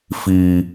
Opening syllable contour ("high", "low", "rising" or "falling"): low